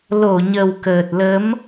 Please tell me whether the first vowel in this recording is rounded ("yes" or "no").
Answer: yes